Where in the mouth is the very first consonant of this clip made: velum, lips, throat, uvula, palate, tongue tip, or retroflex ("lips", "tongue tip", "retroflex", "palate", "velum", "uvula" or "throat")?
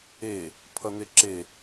lips